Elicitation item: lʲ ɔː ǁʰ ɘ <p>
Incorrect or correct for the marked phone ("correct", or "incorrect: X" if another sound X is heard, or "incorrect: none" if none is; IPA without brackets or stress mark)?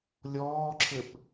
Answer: correct